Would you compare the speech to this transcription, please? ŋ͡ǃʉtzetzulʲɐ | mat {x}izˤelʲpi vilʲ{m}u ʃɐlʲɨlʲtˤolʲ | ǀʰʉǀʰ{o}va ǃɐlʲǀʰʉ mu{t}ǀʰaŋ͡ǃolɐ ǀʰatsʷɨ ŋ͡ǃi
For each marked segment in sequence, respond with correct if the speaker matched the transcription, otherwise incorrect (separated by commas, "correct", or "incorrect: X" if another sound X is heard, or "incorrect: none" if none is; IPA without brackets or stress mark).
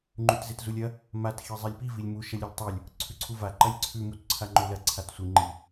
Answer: correct, correct, incorrect: u, correct